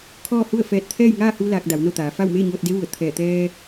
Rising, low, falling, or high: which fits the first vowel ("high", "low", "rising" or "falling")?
falling